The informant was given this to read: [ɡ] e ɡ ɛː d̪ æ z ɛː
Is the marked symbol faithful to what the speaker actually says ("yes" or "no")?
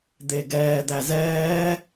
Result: no